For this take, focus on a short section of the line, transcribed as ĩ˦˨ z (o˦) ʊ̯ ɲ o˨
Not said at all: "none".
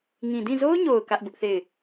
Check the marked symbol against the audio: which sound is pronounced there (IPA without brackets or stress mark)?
o˦